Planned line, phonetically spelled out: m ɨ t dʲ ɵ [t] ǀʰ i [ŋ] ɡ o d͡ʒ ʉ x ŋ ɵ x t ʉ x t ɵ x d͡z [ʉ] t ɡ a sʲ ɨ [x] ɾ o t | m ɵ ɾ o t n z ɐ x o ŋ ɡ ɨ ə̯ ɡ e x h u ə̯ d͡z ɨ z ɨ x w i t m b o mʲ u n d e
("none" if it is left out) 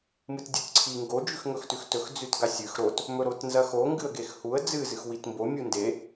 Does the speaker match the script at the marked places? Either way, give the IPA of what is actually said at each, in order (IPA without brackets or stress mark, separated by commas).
t, ŋ, ʉ, x